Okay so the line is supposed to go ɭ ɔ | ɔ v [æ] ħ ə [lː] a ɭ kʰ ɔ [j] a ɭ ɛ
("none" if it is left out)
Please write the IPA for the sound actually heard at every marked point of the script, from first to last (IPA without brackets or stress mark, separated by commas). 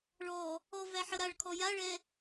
æ, ɾ, j